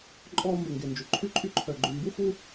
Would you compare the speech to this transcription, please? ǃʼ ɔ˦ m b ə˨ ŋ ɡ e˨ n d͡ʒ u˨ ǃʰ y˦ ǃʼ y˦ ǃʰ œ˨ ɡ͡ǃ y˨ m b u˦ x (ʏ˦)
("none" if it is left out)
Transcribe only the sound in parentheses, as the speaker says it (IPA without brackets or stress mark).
u˦